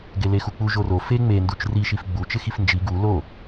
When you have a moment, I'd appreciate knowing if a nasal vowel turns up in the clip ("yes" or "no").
no